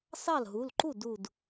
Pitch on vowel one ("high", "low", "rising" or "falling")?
falling